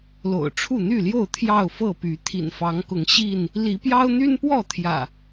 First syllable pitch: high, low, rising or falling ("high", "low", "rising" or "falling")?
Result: low